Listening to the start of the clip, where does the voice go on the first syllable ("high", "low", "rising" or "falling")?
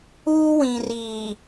high